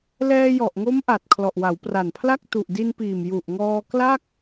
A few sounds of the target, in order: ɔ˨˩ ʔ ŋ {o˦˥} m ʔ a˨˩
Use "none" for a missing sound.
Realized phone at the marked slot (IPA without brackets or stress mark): o˦˥